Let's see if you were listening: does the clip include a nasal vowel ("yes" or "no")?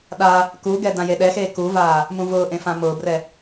yes